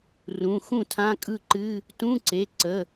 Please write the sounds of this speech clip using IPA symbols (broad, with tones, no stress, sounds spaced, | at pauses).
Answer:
r ũ˩˧˩ x ũ˥˩ tʰ ã˧˥˧ kʼ ɯ˥˩ ǃ ɨ˧˥˧ | t ũ˧˥˧ ǀ e˩˧˩ ǀ ə˩˧˩